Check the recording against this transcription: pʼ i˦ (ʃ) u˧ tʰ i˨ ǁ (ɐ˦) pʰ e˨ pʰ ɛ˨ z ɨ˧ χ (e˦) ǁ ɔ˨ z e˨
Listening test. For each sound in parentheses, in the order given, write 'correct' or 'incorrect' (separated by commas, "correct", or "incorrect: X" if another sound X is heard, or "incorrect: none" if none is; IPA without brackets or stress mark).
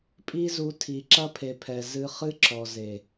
incorrect: z, correct, incorrect: ɨ˦